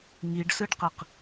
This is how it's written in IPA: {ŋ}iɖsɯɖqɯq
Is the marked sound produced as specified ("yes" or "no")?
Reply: yes